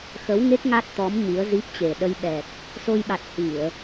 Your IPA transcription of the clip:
xə˨˦wŋe˦˥k̚ ŋa˦˥t̚t̪ɔ˨˦m ɲi˨˦ə̯zi˦˥p̚t͡ɕe˨˩ ɗə˧jɓɛ˨˩t̚ | so˧jɓa˨˩t̚ hi˧˩˨ə̯

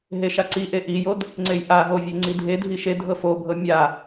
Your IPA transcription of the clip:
ɦeʃaǀiʔe ʔijod | ŋ͡ǀejʔaɦo vʲeŋ͡ǀidʱedʱi ʃe dʱɤfobʱɤ mʲa

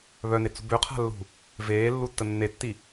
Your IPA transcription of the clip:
βœnet͡sṳ bøqʰa̤lːṳ | veːlːutːə nːetːi

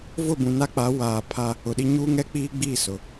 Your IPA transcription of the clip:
vʊ˦˨bũ˨na˦k͡pa˨˦ waː˨pʰa˦ | ʊ˨ɗi˦ ɲuː˦ŋɛ˦k͡piː˦ɡ͡biː˦˨ sʊ˨

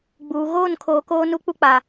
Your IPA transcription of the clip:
ɡ͡buː˨ ɣoː˦˨nkʰoː˨ koː˦nu˦k͡pu˦k͡pa˨

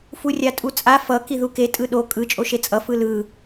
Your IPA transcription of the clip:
furʲatʼut͡sʼa fʌ kiðuke tʼɯɗo kʼɯ t͡ʃʼoʃet͡sʼʌ fɯlɯ

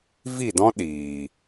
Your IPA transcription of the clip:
vi˦˨dɔ̃˦ ɗiː˨

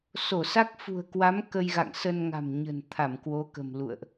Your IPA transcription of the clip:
so˧˩sa˦˥k̚fṳ˨˩ə̯ kwa˨˦m kə˧jɣa̰˧˨ŋ sə˧nŋa̤˨˩mɲə̤˨˩n t̪ʰa˧˩mkwo˨˦kə̤˨˩m lṵ˧˨ə̯ʔ

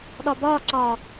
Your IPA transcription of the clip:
ɗɒbɒːǀɒː

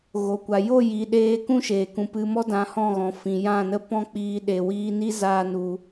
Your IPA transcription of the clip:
ɣo˨kʷa˨ jo˦˨ ji˨ɗeː˧ kũ˦ʃeː˨kũ˨ pɨ˨mɔ˧dã˨ hɔ̃˦˨ɣɔ̃˨ fĩ˨jã˦˨nə˦ pɔ̃˦k͡piː˧ ɗe˨wiː˧ni˦ zaː˦nu˧

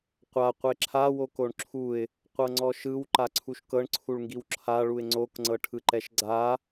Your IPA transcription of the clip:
qʷa qʷeǁʰa wokoɳǁʰuɪ̯ | qʷɤŋ͡ǀɔʃɯw ǃaǀʰuʃkɤɳ ǀʰuɭŋɡiwǁʰa ɭuɪ̯ŋ͡ǀok ŋ͡ǀɤʈʰɯǃɛʃɡ͡ǀa

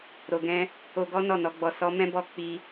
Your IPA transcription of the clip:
ɾo˨ɡɛ̃˧ | o˧ɡɔ˦ nɔ˦˨nɔ˨˦ɡ͡bɔ˧ sɔ˦ mɛ̃˦bɔ˦˨ k͡pi˧

